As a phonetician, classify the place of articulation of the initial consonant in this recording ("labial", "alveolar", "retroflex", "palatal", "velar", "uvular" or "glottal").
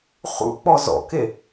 uvular